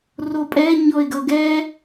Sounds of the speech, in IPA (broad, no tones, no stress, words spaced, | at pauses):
ropʼɛ ɲɔɪ̯ɡʌɡɛ